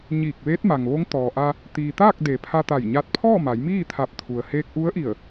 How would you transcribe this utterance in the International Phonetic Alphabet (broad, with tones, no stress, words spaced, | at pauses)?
ɲiː˧˩k̚ʋeː˧˥t̚ma˩ŋʋo˧˥ŋ t̪ɔː˩ʔa˧ | t̪iː˩t̪aː˥˨k̚ de˩˧ pʰa˧t̪a˧˩jɲa˧t̚ pʰɔː˥˨ma˩˧j miː˥˨t̪ʰa˧˩p̚ t̪ʰu˩ə̯heː˧k̚ʔu˧˥ə̯ʔi˧˩ə̯